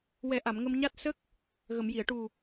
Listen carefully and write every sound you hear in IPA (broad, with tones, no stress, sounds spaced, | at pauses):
w ɛ˨˩˦ ʔ a˨˩˨ m ŋ ə˧ m ɲ a˦˥ t̚ s ə˦˥ k̚ | ɣ ə˨˩˨ m j i˨˩˨ ə̯ ʈ u˨˩